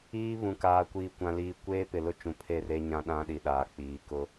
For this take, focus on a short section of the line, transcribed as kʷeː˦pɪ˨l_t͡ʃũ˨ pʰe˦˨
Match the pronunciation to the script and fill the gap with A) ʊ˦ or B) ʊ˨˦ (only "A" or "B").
A